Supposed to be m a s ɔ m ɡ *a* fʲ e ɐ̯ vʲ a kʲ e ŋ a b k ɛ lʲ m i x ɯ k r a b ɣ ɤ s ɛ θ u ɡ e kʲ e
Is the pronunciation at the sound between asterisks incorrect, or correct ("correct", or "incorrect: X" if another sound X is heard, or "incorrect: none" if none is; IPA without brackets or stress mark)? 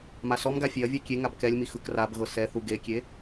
correct